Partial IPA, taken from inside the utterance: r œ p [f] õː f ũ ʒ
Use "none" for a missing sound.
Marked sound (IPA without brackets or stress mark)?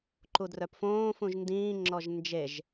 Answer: f